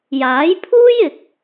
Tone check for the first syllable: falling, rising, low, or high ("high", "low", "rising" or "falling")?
rising